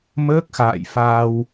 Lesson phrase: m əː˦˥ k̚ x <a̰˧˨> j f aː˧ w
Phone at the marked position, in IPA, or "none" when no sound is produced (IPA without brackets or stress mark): a̰ː˧˨